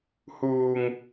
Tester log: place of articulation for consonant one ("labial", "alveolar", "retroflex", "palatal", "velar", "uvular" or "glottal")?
glottal